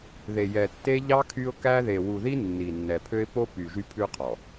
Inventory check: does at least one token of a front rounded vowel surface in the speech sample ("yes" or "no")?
yes